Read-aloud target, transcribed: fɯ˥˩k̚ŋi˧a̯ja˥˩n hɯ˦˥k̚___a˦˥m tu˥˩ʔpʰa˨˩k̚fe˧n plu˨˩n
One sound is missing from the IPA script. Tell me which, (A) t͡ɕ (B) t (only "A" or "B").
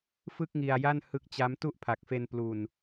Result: A